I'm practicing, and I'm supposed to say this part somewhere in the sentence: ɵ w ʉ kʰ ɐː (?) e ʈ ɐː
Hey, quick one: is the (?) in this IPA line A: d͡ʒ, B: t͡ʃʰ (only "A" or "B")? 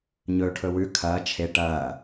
B